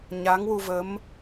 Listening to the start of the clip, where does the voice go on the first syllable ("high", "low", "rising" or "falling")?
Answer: rising